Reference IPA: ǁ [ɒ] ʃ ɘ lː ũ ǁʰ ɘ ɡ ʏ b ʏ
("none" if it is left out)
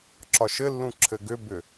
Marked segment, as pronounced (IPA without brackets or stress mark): ɒ